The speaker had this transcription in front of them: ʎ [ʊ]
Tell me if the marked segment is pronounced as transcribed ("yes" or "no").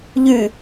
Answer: no